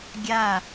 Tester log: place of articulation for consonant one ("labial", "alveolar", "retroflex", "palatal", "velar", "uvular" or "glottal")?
velar